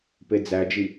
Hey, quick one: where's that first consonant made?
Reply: lips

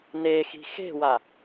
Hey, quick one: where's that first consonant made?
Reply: tongue tip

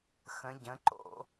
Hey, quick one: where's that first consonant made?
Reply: velum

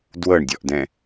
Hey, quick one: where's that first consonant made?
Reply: tongue tip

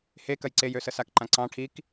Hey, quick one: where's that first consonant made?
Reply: throat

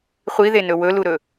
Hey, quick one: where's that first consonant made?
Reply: uvula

